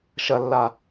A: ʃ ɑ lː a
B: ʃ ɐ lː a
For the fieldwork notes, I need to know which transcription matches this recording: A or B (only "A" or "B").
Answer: B